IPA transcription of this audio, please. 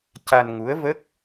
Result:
c a˧ n ŋ u˧˥ ə̯ v ə˦˥ k̚

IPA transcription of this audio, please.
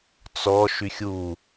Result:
t͡s ɔ ʃ y xʲ u

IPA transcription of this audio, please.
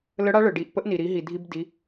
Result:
l ə˧˥ ɽ a˧˥ ɭ ə˩ ɖ i˩˧ ʔ p ə˧˥ ʔ n i˩ ɾ i˩˧ ɦ i˩ dʱ i˧ b d i˩˧

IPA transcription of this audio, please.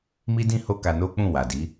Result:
m i˦ d ĩ˦ h o˦ k a˧ n o˦ k͡p ũ˦˨ w a˨ d i˨˦

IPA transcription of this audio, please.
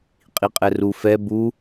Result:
qʼ i qʼ ɛ r u f ɛ b u

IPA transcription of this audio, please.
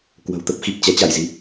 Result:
k w ə̤˨˩ w t̪ ə˦˥ p̚ x i˨˩ p̚ t͡ɕ ɛ˨˦ t͡ɕ a˧˩ j z i˨˦

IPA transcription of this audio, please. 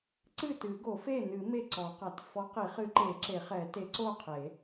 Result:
ǀ ɨ˥˩ t ɨ˨˩˦ ɡ o˨˩˦ f e˥˩ n ɨ˨˩˦ m e˥˩ ǀ ɔ˨˩˦ q a˨˩˦ t f ɔ˨˥ q i˨˩˦ χ ɨ˨˥ ǃ e˨˩˦ ǁ e˨˩˦ χ ɛ˨˩˦ t e˨˥ ǀ o˥˩ qʰ e˨˩˦

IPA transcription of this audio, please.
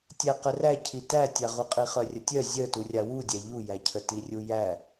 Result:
tʲ æ q ə r æ cʰ i t æ tʲ a ʁ u qʼ i χ œ rʲ ə tʲ œ zʲ œ t u rʲ a w u dʲ æ ʎ u j æ cʰ ə t i rʲ u j æ

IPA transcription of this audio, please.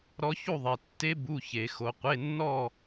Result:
ɾ ɔ˦˥ ç u˥˧ ðˤ e˨˦ tː e˦˥ b u˧˥˧ ç e˧˩˧ x o˨˦ qʷ e˧˥˧ nː ɔ˥˧

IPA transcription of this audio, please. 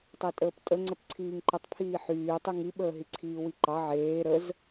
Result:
tˤ e tʼ əː p tʼ ə ŋ͡ǀ ə p ǀʰ iː ŋ ǃ ə tˤ pʰ iː ħ yː tˤ y ŋ i ɓ əː ɦ i ǀʰ iː w i ǃ ɑ ʕ eː ɾ ə z

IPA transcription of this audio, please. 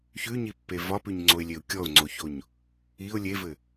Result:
ç ʉ ɲ i pː e v ɒ p ʉ ɲ ŋ͡ǀ o ɪ̯ lʲ e ʊ̯ kʲ ɔ ʊ̯ ŋ͡ǀ o ç o ɲ | i ʊ̯ lʲ e v ɘ

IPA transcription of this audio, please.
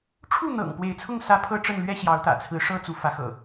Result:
ʈ͡ʂʰ u˥˨ n̪ ɤ̰˨˩ ŋ p w e˨˦ ɪ̯ t͡sʰ ʊ˥˨ ŋ s ä˦ pʰ ɤ˥˨ ʈ͡ʂ ə˥˨ n l ɥ ɛ˦ ɕ j ɑ˨˦ ʊ̯ t̪ ä̰˨˩ t͡sʰ ɹ̩˨˦ ʂ ɤ˦ t͡s u˨˦ f ä˨˦ x ɤ̰˨˩

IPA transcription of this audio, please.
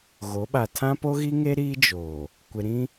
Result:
ɣ o˨˦ ɓ a˨ tʰ ã˦ p o˦ ɣ i˦ ŋ e˦ ɾ iː˦ d͡ʒ oː˨ | kʷ ɪ˨ ɾ ĩ˦

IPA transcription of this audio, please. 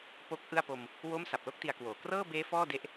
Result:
p o˦˥ k̚ ʔ ɯ˥˩ a̯ p o˧ m | w o˦˥ m s a˨˩ p̚ l o˥˩ k̚ t i˧ a̯ k w oː˨˩ k r ɤː˥˩ b eː˦˥ f ɔː˥˩ d e˦˥ ʔ

